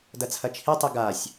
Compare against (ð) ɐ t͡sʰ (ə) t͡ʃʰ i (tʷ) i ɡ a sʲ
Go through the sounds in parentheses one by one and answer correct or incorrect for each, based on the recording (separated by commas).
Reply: incorrect, incorrect, incorrect